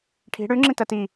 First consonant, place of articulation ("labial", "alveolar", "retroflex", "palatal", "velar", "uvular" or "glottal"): retroflex